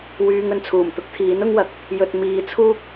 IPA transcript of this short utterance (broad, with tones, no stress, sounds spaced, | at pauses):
w yː˧ ŋ ɵ˨ n t͡sʰ uː˨˩ m t̪ ʊ˥ k̚ t̪ʰ iː˨˥ n ʊ˥ ŋ w ɐ˨ k̚ | j ɵ˨ t̚ m iː˨ t͡sʰ uː˥ k̚